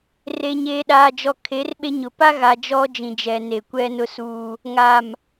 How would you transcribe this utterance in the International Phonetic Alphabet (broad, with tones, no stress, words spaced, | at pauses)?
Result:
re˨ɲeː˨ɗaː˨d͡ʒɔ˨ kʰe˨˦rɓe˦ɲʊ˨ pa˦ɣa˨ d͡ʒɔ˦d͡ʒĩ˨d͡ʒɛ˨ ne˨kʷɛ˦nʊ˦suː˦ | ŋa˨m